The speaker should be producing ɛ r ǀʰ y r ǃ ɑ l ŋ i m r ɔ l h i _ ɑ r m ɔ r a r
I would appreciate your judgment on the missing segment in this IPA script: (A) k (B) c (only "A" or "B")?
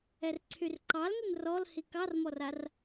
A